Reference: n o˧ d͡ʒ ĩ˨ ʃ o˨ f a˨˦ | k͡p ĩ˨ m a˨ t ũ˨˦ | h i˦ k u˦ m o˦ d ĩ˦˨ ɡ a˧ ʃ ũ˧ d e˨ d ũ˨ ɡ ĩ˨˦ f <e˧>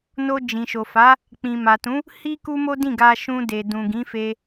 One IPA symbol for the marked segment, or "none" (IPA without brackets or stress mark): e˧